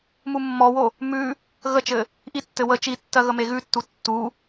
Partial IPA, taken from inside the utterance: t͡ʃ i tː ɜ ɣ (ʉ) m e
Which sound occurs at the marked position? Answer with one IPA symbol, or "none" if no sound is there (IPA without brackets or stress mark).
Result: ə